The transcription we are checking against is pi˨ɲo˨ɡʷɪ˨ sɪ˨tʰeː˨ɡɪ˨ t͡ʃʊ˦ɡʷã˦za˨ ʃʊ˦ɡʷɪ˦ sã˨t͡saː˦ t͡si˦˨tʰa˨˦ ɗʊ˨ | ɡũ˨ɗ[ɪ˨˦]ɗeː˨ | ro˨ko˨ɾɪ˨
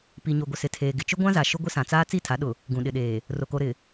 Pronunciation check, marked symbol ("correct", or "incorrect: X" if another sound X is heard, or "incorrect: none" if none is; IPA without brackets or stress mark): incorrect: ɪ˨